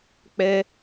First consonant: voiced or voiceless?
voiceless